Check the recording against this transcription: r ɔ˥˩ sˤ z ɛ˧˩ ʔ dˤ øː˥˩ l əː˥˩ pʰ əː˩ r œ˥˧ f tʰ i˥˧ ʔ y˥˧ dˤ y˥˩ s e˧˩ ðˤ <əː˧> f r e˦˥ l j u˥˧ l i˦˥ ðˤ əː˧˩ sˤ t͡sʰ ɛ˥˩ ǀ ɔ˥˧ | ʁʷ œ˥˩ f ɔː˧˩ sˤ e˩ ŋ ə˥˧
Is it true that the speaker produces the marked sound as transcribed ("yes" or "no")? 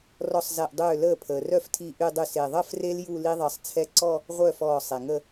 no